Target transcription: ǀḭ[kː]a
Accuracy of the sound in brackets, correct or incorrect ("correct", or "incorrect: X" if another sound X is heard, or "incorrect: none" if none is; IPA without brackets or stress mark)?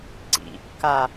correct